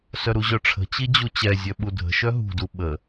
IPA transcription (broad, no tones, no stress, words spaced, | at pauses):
sœɾuʑœʈ͡ʂʰə̤ t͡ɕid͡ʑut͡ɕɛ zʲœɓudʱə̤ ʃœɦṳ duɓə